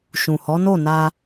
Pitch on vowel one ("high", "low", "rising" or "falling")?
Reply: low